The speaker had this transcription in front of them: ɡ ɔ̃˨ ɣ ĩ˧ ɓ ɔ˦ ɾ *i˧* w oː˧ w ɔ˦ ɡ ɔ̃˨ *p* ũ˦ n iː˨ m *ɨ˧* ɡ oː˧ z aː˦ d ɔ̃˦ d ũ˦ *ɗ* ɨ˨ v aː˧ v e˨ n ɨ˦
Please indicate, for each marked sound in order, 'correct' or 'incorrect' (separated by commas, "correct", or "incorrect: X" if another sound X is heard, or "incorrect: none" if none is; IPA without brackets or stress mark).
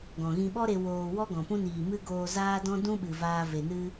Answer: incorrect: e˧, correct, incorrect: ɨ˦, incorrect: ɓ